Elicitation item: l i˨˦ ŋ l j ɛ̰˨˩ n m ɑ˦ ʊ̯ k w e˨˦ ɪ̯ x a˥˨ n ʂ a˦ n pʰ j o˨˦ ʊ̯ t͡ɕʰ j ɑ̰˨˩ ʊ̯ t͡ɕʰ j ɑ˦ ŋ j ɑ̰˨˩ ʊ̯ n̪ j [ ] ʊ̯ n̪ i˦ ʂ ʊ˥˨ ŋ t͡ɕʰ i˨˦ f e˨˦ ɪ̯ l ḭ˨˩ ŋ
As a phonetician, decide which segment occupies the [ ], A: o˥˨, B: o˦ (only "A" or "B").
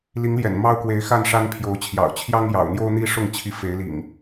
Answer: B